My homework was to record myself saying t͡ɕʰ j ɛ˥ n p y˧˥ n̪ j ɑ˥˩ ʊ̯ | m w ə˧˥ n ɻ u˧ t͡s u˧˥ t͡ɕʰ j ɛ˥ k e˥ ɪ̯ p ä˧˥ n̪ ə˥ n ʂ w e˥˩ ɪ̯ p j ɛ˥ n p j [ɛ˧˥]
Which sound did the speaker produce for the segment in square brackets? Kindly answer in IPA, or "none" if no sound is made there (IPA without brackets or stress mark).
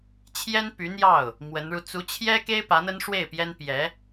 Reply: ɛ˧˥